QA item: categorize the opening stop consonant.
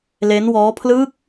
aspirated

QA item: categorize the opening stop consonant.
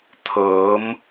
aspirated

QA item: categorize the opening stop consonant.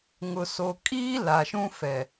ejective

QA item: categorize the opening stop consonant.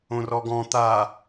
plain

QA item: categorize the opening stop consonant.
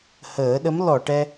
implosive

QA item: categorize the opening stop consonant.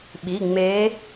implosive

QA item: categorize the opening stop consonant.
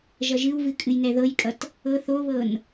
ejective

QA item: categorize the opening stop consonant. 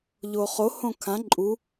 aspirated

